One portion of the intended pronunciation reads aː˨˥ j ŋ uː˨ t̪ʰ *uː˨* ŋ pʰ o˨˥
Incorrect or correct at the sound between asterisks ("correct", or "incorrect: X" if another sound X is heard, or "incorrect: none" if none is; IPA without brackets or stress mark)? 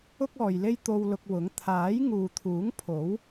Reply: incorrect: uː˨˥